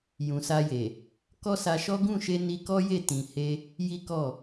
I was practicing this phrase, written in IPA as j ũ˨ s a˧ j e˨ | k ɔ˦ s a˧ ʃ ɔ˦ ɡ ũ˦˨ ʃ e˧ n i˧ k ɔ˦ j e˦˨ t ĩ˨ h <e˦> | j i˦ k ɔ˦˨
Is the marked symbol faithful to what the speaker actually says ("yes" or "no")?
no